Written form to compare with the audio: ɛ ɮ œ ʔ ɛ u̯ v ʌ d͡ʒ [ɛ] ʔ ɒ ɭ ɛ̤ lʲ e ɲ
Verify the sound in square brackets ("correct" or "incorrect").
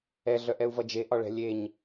incorrect